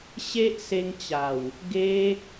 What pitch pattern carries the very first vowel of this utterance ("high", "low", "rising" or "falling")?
high